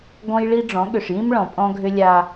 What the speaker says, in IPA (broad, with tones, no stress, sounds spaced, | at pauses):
ɡ ɔ̃˦ j ɭ i˦ ɖ͡ʐ ɔ̃˨˦ ɠ ʏ˨ ʂ j ĩ˦ m ɭ ɔ̃˨ pʼ ɔ̃˦ ɡʱ ʏ˦ lʲ a˦